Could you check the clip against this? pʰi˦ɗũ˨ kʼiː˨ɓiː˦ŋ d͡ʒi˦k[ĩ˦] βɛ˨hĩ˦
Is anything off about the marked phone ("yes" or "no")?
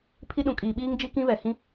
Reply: no